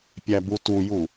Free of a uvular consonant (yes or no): yes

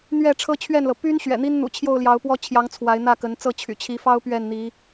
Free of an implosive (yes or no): yes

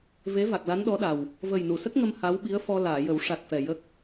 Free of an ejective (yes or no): yes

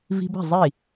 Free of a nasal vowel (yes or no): yes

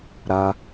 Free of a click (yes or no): yes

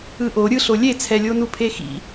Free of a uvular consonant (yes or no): yes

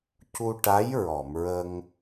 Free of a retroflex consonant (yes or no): no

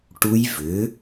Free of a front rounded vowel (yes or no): no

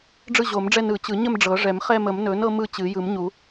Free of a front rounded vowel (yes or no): yes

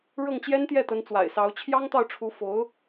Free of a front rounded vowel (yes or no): yes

